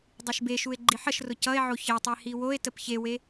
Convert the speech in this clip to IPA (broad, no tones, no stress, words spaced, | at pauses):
dˤeʃbeʃue̯ ɡ͡ǃiħəʃrʊ cʌe̯ʕo çetˤe hiwoe̯təp çewe